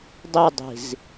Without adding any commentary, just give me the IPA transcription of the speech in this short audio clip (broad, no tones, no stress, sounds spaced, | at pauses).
dˤ i dˤ i̤ z